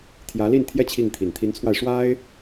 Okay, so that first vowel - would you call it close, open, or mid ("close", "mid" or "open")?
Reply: open